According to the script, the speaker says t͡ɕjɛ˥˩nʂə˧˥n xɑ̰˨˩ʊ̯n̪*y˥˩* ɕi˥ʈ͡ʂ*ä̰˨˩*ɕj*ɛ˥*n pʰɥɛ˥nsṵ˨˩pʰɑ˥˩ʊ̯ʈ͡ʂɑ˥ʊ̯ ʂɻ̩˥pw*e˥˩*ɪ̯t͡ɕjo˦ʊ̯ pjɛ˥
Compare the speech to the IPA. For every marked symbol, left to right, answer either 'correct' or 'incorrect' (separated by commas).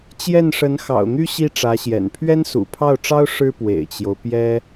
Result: incorrect, incorrect, incorrect, incorrect